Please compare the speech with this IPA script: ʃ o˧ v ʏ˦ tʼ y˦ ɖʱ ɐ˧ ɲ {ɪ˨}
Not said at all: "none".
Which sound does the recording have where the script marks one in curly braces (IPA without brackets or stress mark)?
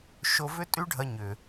ʏ˨